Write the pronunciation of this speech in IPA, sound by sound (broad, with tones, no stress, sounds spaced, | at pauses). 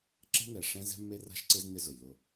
ǁ ɛ̤˦ n ɛ˨ ʂ ɛ̃˦ z ɛ̤˦ mː e˦ r a̤˦ ʃ ǀ ɪ˦ z n ɪ˦ z ʊ˨ j l ʊ˦˨